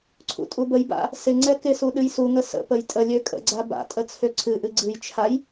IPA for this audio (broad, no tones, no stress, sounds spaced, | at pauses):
ǀʰ ṵ tʼ u b ə j b a̰ | s ɪ ŋ͡ǀ ɛ k ɪ s u ɗ ɨ j s u ŋ ə s ə̰ p ə j tʼ ə lʲ ø kʼ ə̰ ɡ͡ǀ a b a̰ tʼ ə t͡sʰ ø ǀʰ ɨ ʔ ɨ ɡ͡ǀ ɨ j t͡ʃʰ a j